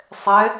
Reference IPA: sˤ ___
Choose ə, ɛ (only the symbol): ɛ